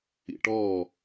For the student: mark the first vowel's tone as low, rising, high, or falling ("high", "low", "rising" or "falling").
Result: low